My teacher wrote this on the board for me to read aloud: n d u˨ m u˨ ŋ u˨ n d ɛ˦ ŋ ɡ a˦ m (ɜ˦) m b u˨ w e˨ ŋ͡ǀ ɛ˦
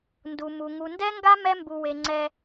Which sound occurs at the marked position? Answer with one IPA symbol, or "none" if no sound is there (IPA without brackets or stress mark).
ɛ˦